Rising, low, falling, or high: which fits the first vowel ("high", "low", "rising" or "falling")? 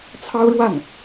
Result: high